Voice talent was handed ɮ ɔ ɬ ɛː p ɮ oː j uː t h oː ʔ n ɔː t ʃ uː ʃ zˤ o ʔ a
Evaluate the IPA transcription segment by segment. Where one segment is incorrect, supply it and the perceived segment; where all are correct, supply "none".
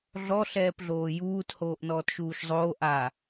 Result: o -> oː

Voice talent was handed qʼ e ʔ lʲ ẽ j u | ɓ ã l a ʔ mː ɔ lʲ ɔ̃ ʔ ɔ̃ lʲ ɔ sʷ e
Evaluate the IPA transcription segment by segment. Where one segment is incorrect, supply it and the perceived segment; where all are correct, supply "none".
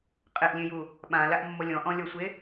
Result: none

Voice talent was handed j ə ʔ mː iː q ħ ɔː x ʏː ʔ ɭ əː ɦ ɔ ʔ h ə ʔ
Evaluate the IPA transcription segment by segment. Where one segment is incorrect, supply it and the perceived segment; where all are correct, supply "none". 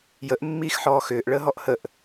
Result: q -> x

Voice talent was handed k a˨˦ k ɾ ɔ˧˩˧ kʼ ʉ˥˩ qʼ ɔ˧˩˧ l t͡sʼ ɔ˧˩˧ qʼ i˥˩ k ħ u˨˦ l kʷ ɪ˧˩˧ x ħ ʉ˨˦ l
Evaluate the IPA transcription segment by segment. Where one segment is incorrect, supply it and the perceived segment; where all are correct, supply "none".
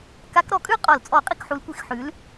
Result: none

